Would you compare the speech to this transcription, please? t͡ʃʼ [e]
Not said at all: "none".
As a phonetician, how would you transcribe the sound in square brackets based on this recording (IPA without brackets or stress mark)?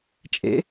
ḛ